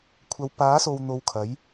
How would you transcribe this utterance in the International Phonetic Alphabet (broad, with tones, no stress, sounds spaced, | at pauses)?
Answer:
kʷʰ ɐ˨˧ w p aː˨˥ s o˨ w n̪ o˧ w kʰ ɐ˨˥ j